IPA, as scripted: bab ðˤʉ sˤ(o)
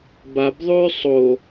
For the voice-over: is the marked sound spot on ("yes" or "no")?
yes